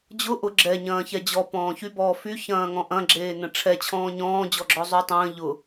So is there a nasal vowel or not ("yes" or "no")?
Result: yes